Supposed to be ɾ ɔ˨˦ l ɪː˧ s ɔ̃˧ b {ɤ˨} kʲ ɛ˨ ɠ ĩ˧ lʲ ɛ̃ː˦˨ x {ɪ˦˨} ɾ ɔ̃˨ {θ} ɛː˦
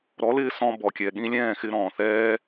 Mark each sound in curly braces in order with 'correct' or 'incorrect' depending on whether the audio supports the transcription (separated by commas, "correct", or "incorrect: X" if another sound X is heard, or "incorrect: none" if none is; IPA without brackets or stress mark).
incorrect: ɔ˨, incorrect: ɪ˧, correct